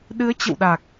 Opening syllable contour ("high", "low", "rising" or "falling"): rising